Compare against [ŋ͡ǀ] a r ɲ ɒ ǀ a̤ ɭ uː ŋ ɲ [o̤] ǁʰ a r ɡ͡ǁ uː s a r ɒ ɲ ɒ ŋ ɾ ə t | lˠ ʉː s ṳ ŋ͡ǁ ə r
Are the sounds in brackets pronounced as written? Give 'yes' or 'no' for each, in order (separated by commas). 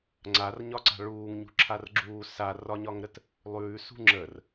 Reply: yes, no